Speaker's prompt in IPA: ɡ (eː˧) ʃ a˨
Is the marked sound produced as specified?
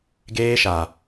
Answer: yes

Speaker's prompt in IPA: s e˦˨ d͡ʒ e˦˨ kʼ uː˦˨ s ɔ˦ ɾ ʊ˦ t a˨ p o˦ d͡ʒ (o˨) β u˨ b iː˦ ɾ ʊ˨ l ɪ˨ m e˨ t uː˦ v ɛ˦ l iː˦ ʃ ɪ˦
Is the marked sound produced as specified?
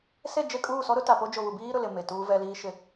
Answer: yes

